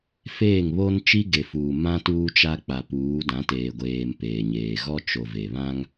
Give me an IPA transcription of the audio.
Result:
f eː˦˨ ŋ β o˦ n t͡ʃ i˦ ɡ e˨ f uː˨ m ã˦ t uː˦ t͡ʃ a˦ k͡p a˨ p uː˨˦ d ã˨˦ t eː˨ ɡʷ eː˨ m p eː˨ ɲ eː˨ ɣ ɔ˦ t͡ʃ o˨ v e˨ β ã˦ ŋ

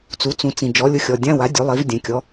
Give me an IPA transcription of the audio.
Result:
t͡s u˩˥ t͡s ũ˨˩˦ t͡s ĩ˩ d͡ʒ ɔ˩˥ lʲ ʊ˦˨ xʲ ɔ˩ dʲ ã˧˥˧ w a˩˥ dʲ u˩˥ lˠ i˩˥ v dʲ ɛ̃˩ kʲ ɔ˩˥

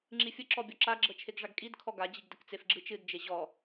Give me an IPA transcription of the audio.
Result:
ŋ͡ǁ i fʲ ə ǁ ɔ bʲ ɔ ǁ a ɡ͡ǁ ɤ t͡ʃʰ e ɡ ʐ a ɡ kʼ i d kʰ ɔ ɡ a d͡ʑ i ɡ d ə k t͡s e f ɡ͡ǁ ɨ t͡ʃ ɨ d d͡ʒ e ʑ ɔ

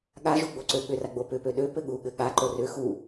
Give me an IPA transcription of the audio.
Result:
ɠ a ʒ u ɡ͡b o ǀ ø ɠ ʏ r a ɡ͡b o p ʏ p ø ɗ ø p ɘ ɠ u ɠ ɘ ɠ a ǃ o r ʏ x u

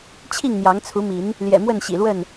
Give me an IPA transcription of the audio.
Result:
t͡ɕʰ i˥˨ ŋ n̪ j ɑ˨˦ ŋ t͡sʰ u˨˦ m i˨˦ n | l j ɛ̰˨˩ m w ə˥˨ n ɕ ḭ˨˩ l w ə˥˨ n

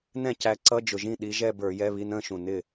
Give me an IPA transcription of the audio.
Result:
n ɛ̃˥˩ c æ˨˦ ǀ ʌ˧˥˧ d͡ʒ ʊ˨˩ ʒ ĩ˥˩ ɗ i˨˦ ʒ ɛ˥˧ b ə˞˧˩˧ j ɛ˧˥˧ β i˧˥˧ n ə̃ː˥˧ ʃ ũ˨˩ n ɪ˥˩

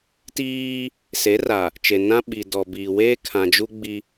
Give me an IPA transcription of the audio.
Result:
t iː˦ | s e˨˦ r a˨ | t͡ʃ e˨ n ã˦ ɓ i˨ d ɔ˨ b iː˨ w eː˦ kʰ ã˨ d͡ʒ u˦ ɡ͡b i˦

